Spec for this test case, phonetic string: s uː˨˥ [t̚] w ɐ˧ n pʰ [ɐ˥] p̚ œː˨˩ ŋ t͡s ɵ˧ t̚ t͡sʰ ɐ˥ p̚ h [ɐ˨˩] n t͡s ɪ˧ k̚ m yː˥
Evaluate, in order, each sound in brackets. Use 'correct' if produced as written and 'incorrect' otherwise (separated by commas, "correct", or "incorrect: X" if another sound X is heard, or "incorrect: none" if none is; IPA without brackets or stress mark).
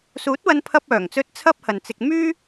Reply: correct, incorrect: ɐ˧, incorrect: ɐ˨